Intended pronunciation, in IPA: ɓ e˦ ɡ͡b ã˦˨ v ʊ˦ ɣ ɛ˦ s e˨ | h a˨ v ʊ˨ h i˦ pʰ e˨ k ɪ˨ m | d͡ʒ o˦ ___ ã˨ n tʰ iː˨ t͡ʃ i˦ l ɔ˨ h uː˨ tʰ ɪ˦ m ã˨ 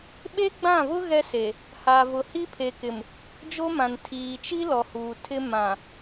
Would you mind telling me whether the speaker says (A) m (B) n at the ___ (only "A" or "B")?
A